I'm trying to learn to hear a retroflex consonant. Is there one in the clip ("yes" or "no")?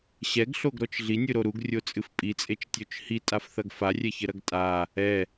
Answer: no